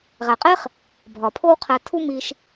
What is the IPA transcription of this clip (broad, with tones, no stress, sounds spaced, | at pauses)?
ʁ æ˨ qʼ e˦ χ | bʱ ɒ˨ pʰ o˦ w qʰ æ˧ tʰ u˦ m i˧ ʃ